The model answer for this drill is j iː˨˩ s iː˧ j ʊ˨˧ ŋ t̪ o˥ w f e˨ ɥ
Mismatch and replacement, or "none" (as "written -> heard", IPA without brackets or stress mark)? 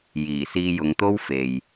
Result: ɥ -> j